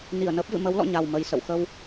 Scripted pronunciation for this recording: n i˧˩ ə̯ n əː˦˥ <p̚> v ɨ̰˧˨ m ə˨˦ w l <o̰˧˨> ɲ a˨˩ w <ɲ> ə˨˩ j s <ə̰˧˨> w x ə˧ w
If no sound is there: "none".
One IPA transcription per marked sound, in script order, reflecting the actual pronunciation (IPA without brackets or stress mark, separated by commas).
p̚, ɔ̰˧˨, m, ə̰˧˨